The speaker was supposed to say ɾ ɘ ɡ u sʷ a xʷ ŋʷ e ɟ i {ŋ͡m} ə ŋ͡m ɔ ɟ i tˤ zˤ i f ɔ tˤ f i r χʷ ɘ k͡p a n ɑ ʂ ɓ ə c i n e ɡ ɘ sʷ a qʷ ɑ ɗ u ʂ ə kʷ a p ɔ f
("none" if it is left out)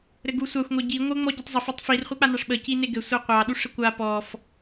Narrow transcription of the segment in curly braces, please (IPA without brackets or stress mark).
ŋʷ